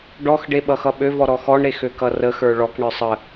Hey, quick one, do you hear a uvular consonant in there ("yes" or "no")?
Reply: no